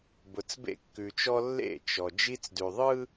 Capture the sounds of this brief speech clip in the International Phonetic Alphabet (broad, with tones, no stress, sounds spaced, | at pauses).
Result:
b ʊ˨ t͡s b ḛ˦ kː ʉ˨ t͡ʃ ɔ˦ lː ḛ˦˨ t͡ʃ ɔ˨ d͡ʒ i˦ t͡s d ʉ˨ ðˤ ɯ˦